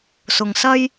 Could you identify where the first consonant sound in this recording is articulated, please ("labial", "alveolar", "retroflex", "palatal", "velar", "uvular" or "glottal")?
alveolar